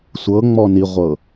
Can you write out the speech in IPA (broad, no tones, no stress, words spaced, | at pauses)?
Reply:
sʷɤŋ͡mɔ niʁʷɤ